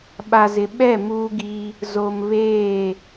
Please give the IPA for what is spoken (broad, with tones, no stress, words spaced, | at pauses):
ɓa˨zɪ˨ ɓɛ˦˨ muː˦ɡi˦ | zo˨m βeː˦˨